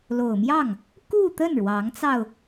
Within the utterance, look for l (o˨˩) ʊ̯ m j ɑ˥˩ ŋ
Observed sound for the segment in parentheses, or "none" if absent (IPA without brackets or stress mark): o˨˩